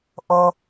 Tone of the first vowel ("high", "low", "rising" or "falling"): high